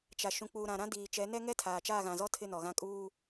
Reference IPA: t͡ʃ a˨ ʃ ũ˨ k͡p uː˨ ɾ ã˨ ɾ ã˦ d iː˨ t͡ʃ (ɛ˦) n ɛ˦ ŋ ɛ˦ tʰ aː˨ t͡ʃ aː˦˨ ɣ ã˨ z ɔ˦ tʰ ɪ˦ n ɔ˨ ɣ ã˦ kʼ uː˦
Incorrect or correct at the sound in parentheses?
incorrect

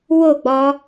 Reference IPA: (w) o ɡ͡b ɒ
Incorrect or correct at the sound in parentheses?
correct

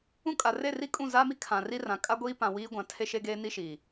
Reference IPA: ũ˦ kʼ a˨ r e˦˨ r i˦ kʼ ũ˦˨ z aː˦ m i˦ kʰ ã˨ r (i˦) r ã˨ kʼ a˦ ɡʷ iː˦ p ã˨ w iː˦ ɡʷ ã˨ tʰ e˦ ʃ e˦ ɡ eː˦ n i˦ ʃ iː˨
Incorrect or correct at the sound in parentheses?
correct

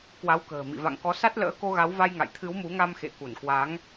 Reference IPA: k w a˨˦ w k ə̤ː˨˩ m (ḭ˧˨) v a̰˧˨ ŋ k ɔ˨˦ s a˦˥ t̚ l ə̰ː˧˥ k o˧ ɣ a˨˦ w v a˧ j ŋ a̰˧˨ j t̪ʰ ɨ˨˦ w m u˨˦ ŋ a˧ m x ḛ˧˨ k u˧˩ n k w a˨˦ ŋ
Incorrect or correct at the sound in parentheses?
correct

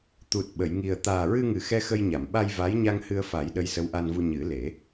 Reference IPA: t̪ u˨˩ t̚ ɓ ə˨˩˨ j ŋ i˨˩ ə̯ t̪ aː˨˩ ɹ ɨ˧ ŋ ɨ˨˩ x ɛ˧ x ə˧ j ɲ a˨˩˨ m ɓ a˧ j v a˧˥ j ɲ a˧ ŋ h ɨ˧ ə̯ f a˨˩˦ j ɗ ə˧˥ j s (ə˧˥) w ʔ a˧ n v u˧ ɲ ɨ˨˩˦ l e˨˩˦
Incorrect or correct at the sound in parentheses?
correct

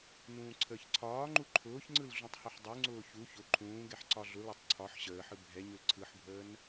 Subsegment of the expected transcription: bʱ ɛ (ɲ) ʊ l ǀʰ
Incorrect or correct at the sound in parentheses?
correct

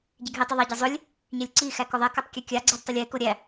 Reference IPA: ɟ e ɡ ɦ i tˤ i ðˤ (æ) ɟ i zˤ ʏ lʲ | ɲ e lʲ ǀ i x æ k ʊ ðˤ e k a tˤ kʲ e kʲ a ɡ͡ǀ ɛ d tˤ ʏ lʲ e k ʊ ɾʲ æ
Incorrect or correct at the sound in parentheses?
correct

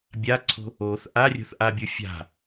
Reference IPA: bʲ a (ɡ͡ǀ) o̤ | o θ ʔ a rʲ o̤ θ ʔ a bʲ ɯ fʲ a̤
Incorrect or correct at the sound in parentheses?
incorrect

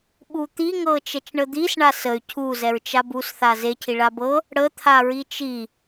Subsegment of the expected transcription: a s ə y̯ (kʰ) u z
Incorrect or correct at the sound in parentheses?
incorrect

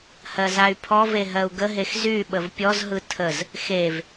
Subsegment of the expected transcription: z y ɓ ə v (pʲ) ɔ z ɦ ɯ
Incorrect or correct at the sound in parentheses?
correct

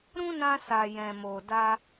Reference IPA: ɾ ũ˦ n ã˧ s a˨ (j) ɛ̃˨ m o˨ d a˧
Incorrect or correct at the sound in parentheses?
correct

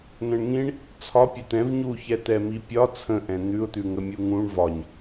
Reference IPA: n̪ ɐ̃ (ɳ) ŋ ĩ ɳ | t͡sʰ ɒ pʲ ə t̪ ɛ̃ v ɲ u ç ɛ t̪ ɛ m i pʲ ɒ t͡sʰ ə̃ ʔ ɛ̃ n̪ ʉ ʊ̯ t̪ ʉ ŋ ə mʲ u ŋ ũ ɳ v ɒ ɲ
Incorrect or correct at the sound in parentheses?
correct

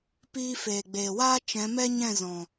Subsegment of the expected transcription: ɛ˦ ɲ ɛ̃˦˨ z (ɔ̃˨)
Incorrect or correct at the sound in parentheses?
correct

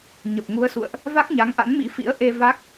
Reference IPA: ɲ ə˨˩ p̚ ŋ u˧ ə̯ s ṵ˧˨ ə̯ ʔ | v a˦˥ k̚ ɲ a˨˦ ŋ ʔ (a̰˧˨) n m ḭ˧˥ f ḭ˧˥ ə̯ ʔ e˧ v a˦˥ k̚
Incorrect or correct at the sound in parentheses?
incorrect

